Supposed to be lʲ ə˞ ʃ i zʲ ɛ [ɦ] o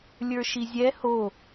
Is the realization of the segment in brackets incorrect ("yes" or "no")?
yes